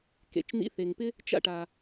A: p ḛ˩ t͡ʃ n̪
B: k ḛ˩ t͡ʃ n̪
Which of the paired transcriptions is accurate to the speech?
B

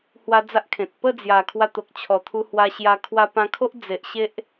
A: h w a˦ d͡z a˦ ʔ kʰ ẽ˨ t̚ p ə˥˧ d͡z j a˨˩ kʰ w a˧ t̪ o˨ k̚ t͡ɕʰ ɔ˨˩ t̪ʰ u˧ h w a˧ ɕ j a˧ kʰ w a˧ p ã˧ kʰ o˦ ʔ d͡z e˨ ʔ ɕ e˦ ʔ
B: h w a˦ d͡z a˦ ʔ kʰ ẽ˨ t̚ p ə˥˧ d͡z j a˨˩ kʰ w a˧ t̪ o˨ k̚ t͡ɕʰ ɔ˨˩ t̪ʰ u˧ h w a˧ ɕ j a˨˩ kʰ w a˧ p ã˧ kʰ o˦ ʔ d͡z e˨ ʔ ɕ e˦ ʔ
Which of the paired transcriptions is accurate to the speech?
A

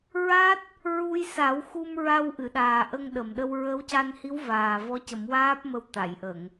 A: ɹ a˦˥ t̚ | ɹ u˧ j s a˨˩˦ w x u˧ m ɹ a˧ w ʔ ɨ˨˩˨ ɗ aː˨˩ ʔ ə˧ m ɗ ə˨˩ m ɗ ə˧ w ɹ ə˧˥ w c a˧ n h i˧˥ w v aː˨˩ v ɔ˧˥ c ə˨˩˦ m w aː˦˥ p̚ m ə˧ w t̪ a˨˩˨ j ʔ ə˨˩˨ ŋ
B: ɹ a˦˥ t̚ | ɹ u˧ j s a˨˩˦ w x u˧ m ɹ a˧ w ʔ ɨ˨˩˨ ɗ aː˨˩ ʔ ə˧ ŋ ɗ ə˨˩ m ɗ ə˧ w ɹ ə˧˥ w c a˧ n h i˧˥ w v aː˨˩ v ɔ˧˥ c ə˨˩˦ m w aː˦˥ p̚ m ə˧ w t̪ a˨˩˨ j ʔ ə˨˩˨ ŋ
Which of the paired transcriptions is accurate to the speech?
B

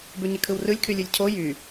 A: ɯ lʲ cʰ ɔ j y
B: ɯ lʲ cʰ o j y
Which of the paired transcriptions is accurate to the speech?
B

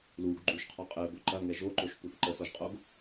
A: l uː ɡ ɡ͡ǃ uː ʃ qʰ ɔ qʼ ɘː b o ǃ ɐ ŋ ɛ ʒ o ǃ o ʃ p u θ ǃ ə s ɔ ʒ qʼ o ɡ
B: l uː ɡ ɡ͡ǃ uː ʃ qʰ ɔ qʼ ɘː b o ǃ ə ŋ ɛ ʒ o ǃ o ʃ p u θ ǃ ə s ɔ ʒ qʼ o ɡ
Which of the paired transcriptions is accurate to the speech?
A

